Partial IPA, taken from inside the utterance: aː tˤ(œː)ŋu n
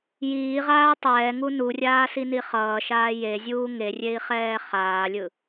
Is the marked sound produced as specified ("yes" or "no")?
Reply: no